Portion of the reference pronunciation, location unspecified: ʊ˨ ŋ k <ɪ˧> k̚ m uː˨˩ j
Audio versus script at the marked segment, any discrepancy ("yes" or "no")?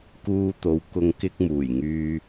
no